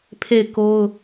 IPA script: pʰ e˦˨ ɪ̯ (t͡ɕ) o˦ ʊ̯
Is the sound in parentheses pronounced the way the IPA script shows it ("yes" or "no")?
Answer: no